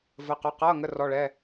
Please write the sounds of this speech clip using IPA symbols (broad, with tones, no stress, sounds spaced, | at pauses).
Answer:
v ə˩˧˩ q ʊ˩˧˩ q ʌː˩˧˩ ŋ ə˩˧˩ r ɔ˩˧˩ ɭ ɛ˩˧˩